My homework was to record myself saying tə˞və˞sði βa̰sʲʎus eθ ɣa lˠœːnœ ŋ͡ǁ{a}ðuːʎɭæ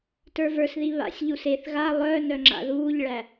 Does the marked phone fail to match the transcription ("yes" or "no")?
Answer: yes